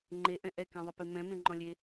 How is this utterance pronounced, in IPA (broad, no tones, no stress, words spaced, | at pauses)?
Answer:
ŋ͡ǃe ʔɛ̃ʔɛ kɛ̃ðˤepemɛ̃ mẽŋ͡ǃɔ̃lʲe